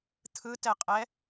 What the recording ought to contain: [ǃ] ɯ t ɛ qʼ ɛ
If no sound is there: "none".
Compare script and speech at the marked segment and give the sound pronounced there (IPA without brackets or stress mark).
t̪ʰ